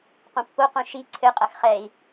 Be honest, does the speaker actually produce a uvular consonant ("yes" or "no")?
yes